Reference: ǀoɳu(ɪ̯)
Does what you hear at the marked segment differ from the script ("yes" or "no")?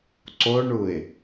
no